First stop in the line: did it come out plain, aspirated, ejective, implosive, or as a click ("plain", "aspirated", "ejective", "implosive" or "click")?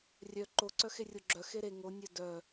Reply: click